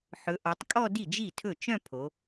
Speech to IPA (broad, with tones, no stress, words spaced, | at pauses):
ħɵ˩˧ʔɔ˩˧tˤkʼɔ˥˧ di˥˩d͡ʒi˥˩tʰɵ˥˩ t͡ʃœ̃˥˧pʰo˩˧